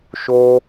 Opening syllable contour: high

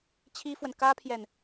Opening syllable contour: high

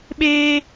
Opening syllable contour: high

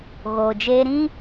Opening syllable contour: low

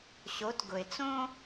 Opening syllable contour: rising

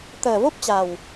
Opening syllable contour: low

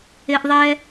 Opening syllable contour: low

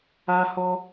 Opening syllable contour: high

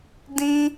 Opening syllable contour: high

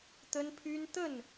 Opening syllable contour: high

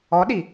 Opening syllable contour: rising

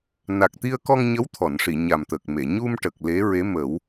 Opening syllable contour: low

